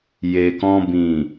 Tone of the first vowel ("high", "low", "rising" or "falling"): low